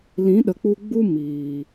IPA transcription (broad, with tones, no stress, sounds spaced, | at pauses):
l ĩ˨˦ ɗ ə˨ k͡p u˧ ɡ͡b u˦ m iː˨